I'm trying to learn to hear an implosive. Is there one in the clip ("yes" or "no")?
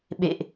yes